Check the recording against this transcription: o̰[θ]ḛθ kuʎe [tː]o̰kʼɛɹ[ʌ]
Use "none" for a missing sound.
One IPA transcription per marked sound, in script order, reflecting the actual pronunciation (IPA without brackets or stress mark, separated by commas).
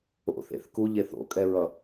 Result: θ, θ, ʌ